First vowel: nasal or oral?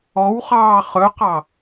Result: oral